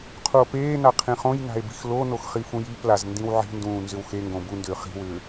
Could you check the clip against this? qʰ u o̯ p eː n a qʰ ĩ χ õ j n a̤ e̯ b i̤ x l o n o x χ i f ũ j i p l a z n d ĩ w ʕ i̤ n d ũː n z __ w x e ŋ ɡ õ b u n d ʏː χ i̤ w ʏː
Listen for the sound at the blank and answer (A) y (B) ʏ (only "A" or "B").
B